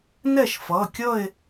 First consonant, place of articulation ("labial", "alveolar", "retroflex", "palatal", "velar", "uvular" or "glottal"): alveolar